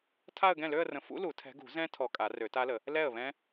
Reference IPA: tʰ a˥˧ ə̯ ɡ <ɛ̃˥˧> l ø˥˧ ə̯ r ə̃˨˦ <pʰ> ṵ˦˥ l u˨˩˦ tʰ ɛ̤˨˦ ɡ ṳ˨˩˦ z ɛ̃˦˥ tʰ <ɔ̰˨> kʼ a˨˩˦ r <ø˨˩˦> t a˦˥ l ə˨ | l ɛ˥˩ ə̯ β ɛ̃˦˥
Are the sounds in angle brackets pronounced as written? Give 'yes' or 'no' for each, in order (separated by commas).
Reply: no, no, no, yes